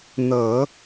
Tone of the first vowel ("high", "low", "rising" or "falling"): low